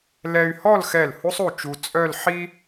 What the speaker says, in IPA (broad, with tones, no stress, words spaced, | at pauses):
lɛ˧y̯hɔ˥˧lxɛ˧˩l hu˥sˤu˧˩t͡ʃu˧ t͡sʼœ˥˧lħi˥